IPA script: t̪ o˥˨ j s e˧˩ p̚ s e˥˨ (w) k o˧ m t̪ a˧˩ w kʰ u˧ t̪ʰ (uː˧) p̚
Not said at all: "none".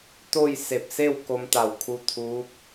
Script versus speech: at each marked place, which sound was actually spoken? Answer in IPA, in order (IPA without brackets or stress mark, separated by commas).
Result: w, uː˧˥